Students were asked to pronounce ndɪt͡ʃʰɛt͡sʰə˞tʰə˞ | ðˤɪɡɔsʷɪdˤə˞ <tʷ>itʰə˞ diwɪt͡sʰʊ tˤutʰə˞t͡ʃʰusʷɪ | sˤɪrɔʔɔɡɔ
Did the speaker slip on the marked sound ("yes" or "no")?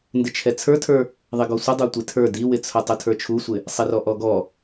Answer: no